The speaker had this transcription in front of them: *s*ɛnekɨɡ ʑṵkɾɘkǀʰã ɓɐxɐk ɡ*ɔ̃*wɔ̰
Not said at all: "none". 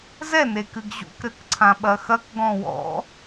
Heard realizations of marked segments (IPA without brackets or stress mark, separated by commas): z, ɔ̃